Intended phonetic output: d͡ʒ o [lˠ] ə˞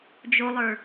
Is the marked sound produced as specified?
yes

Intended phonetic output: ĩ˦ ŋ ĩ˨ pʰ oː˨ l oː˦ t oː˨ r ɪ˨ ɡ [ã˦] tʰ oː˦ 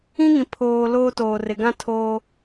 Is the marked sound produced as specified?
yes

